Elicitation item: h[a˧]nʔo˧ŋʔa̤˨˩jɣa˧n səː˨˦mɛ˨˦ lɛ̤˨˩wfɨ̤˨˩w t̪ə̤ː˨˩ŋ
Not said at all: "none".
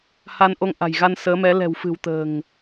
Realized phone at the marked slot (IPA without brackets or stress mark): a˧